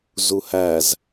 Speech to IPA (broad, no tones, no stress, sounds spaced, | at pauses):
z u h æ z